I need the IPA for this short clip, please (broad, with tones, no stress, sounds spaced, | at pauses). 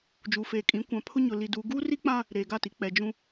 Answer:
d͡ʒ uː˨ f eː˨ kʼ ĩ˨˦ kʷ ã˨ pʰ ʊ˦ ɲ ʊ˨ l i˨ d uː˨ ɡ uː˦ r i˦ k͡p ã˦ | ɾ eː˨ ɡ a˦˨ t i˨ k͡p ɛ˨ d͡ʒ ũ˦